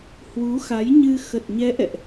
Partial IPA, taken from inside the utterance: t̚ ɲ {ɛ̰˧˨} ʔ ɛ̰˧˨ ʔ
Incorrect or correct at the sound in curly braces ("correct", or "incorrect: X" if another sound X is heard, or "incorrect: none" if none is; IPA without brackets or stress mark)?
incorrect: ɛ˨˦